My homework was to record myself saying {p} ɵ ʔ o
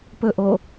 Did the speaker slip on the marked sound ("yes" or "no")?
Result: no